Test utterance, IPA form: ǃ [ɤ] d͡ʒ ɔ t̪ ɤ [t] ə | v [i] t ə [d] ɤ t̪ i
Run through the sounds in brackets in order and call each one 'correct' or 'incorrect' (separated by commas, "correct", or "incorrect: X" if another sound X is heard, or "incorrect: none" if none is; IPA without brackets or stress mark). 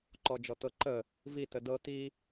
incorrect: ɔ, incorrect: ǃ, correct, correct